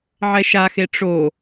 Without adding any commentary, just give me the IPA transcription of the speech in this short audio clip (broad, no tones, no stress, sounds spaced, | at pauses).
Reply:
ʕ ɛ ʃ a x e ʈ͡ʂ o